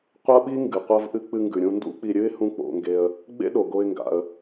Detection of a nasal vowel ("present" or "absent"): present